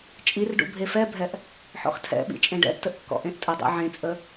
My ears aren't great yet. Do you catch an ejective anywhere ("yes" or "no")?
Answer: yes